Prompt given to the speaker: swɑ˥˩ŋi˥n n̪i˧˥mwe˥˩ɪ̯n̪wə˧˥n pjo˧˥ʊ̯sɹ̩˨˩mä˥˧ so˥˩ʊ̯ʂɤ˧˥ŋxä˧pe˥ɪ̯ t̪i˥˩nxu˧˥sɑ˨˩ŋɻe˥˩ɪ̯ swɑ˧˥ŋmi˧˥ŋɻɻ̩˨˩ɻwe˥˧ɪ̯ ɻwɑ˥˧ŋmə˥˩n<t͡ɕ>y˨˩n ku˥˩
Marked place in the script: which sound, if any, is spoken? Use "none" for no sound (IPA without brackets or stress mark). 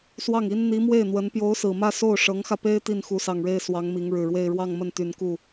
t̪